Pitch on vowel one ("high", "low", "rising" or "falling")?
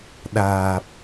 low